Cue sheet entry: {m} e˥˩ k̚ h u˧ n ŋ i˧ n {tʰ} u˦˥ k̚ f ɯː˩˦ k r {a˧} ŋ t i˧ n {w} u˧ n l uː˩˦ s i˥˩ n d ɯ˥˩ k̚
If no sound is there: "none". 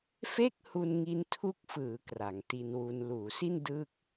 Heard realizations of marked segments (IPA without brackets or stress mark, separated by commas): f, tʰ, a˩˦, w